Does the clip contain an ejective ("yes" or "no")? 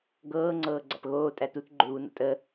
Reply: yes